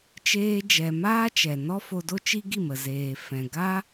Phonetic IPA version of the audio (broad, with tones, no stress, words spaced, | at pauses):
t͡ʃeː˧d͡ʒɛ˨maː˦ t͡ʃɛ˨ nɔ˦fo˧do˦t͡ʃi˦ ɡi˦˨mə˨ zeː˨fɛ̃˨ɡa˦